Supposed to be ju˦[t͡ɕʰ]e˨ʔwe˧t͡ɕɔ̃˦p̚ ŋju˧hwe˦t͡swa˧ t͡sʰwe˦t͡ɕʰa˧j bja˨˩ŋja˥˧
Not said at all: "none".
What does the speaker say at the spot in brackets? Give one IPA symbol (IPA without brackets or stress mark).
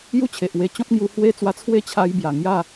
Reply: t͡ɕʰ